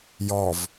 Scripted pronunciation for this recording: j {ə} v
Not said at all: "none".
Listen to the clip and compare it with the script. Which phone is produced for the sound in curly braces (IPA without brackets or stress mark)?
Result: ɔ